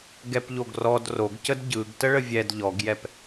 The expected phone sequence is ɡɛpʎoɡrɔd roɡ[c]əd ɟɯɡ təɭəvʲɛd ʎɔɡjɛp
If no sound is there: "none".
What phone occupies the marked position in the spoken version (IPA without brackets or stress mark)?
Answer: c